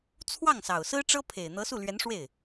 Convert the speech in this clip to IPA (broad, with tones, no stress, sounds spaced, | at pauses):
t͡sʰ w ɑ˥˩ ŋ s ɑ˨˩ ʊ̯ s ɹ̩˥ ʈ͡ʂ ɤ˥ pʰ e˨˩ ɪ̯ n̪ ɤ˧˥ s u˥˩ l ɥ ɛ˧˥ n ʂ w e˥˩ ɪ̯